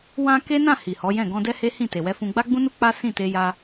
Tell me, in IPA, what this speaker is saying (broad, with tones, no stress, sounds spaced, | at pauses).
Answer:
w ã˧ k e˦ n ã˦˨ h i˨ h ɔ˨˦ j ɛ̃˦˨ ɡ ɔ̃˧ d ɛ˦ h e˦ h ĩ˦˨ t e˨ w ɛ˧ f ũ˧ ɡ͡b a˦ ɡ͡b ũ˦ n u˦ k͡p a˦ s ĩ˦˨ t e˧ j a˧